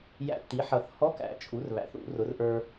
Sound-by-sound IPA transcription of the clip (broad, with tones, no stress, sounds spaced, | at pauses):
j æ̰˧ tː i˩˥ ħ ʌ˨˩˦ θ h ɔ˧˥˧ k æ̰˨˩˦ t͡ʃʼ u˩˥ r β æ̰˩˥ θ ṵ˨˩˦ r ʊ˩˥ r ʔ ə˞˧